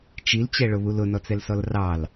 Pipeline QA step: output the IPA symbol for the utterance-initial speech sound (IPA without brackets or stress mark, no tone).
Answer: t͡ʃ